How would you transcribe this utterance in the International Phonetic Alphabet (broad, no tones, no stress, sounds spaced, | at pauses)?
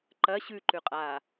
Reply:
ǃ ɐ ɕ ʉ ǃ ʉ qʼ aː